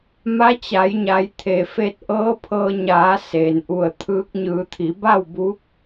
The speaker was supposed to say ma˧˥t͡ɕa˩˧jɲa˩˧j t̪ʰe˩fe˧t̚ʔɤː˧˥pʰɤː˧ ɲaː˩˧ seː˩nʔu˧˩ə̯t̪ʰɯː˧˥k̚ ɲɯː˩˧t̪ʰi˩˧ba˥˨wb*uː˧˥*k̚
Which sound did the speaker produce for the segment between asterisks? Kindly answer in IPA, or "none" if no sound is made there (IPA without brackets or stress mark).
uː˧˥